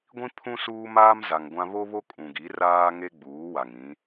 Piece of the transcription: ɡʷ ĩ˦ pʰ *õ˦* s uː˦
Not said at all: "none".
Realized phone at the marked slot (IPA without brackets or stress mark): ũ˦